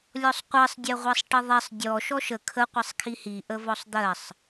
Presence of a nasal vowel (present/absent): absent